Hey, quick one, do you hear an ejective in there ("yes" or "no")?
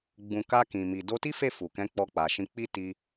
no